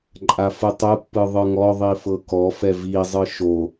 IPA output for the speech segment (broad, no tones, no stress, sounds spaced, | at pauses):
ǃʼ a f ɯ tˤ ɯ pː ɯ ðˤ ɯ ŋ ɔ ðˤ i f ɤ k ɔ f ɛ v i zˤ ɯ ʃ o